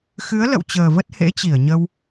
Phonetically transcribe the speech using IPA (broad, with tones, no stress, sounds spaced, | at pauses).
x ɨ˨˦ ə̯ l ə̰˧˨ w t͡ɕ əː˨˩ v ə˦˥ t̚ h ḛ˧˥ t͡ɕ i˧˩ ə̯ ɲ ə˧ w